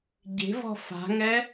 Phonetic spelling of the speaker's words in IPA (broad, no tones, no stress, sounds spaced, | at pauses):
ɟ e̤ v ɔ̤ f a̤ ŋ ɛ